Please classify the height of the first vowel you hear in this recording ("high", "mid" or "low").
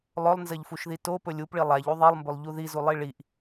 mid